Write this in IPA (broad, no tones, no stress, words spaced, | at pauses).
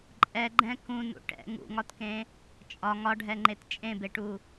ǃʼɛɡ͡ǃɛ̃ kũnṵ ʈɛ̰ ŋṵŋɒtkẽ | t͡ʃʼɒ ŋɒɖʱɛŋ͡ǃet t͡ʃʼẽbeʈu